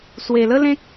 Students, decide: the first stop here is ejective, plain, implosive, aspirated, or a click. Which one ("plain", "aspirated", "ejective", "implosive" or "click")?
plain